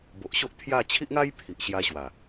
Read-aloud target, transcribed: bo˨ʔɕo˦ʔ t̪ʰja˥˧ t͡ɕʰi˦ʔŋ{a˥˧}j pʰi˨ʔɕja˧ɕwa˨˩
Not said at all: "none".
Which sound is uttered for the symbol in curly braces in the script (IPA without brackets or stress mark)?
a˦